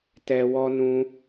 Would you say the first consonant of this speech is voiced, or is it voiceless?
voiceless